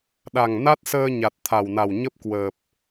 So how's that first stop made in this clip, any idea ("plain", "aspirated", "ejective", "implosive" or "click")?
implosive